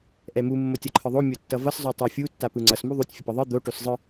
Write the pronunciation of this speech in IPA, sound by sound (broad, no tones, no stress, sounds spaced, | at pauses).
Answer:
ʔ ɛ m u mː o tʲ ʌ ǃʰ ɯ ðˤ o mʲ o tː ʌ v ʌ s zˤ o tˤ a fʲ u tː a p ɯ ŋ͡ǀ ʌ s m u ðˤ u tʲ fʲ ʌ p ʌ ðˤ ɯ d̪ o ʈ o s zˤ ɯ